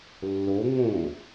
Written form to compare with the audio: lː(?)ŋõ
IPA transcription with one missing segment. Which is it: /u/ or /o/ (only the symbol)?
o